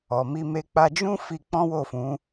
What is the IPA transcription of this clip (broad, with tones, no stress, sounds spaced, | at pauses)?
ɔ˨ m i˧ m e˦ k͡p a˧ d͡ʒ ũ˦ f i˧ k͡p ɔ̃˦ w o˦˨ f ũ˨˦